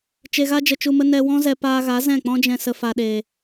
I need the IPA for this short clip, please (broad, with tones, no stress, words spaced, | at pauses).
t͡ʃe˧ɣa˦d͡ʒə˧ t͡ʃu˧mə˦ nɛ˧wɔ̃˦zɛ˧ paː˧ɣa˨˦ zɛ̃˦˨k͡pɔ̃˦d͡ʒɛ̃˧ sə˨fa˨ɗeː˨